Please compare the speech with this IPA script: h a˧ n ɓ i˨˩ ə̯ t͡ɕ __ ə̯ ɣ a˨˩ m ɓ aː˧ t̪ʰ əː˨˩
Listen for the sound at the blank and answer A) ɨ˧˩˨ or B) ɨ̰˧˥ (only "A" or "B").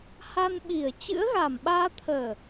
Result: B